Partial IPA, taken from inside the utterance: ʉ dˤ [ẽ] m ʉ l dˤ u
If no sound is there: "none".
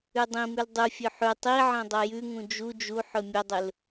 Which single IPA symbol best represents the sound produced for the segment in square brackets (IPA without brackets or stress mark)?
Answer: ĩ